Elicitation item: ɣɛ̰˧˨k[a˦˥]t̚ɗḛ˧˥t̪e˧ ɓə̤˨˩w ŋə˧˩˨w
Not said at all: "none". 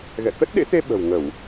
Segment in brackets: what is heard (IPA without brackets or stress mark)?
ə˦˥